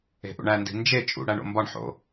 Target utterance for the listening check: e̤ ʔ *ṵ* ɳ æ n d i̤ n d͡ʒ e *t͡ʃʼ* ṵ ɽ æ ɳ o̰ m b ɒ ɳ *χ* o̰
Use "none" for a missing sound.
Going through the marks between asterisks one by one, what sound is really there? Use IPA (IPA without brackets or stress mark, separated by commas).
ṵ, t͡ʃʼ, ħ